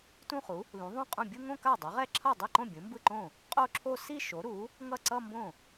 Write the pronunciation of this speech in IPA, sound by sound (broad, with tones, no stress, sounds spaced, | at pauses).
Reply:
t ũ˥˧ χ u˩˥ | l ũ˩˥ ðˤ ũ˥˩ qʼ ũ˥˩ bʲ u˥˧ ŋ õ˥˧ k a˥˩ dˤ a˩˥ ʁ ɛ˥˧ ǁʰ ʌ˥˩ dˤ ɛ˥˩ ǃ õ˥˩ bʲ ũ˩˥ m b ɯ˥˩ ǃ õ˥˩ | qʼ o˥˧ ǁʰ o˥˧ s i˥˧ ʃ o˩˥ ɾ u˩˥ | ŋ ʌ˥˩ ǀ ʌ˥˧ m b õ˥˩